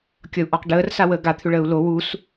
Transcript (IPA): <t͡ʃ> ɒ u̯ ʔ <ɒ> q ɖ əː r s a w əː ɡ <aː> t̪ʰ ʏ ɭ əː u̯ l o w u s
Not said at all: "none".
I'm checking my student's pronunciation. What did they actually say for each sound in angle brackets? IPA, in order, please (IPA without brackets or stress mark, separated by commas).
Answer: kʲ, ɒ, a